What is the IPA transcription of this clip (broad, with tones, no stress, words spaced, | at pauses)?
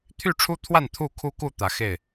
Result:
t̪ʰy˥˨ʈ͡ʂʰu˦t̪ʰwa˥˨n t̪ʰu˥˨kʰu˦ku˥˨ t̪ä˨˦xe˥˨ɪ̯